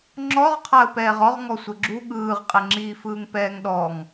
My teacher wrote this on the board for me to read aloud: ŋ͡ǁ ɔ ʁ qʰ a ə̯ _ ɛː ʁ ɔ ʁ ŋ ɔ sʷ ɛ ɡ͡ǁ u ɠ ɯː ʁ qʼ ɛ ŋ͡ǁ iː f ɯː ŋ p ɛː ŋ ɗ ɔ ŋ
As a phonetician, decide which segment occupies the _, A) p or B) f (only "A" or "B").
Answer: A